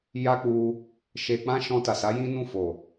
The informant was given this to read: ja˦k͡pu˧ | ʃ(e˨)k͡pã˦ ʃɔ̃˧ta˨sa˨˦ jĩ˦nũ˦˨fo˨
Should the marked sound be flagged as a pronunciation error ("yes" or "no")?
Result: yes